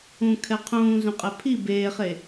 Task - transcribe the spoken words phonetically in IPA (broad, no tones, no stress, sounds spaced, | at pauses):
ũ kʰ ɛ qʰ ũː z ũ qʼ ɛ pʰ i b eː χ e